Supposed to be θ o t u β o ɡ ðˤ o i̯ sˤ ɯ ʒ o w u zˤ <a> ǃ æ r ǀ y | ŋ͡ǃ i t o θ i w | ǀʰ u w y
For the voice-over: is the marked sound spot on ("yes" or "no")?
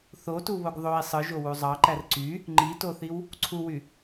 no